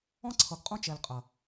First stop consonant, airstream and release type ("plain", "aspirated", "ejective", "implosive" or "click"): click